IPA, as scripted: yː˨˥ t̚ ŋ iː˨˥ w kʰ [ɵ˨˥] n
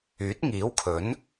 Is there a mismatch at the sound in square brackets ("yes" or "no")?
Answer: no